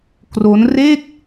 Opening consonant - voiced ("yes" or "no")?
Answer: no